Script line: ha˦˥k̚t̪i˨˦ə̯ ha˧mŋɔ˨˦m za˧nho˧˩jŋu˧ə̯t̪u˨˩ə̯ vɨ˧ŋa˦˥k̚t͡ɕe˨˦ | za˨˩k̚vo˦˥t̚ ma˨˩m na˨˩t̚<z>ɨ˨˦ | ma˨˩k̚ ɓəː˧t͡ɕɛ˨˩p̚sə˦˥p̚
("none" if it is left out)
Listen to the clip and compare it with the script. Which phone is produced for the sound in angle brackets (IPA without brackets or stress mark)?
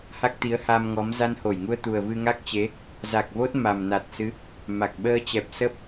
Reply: s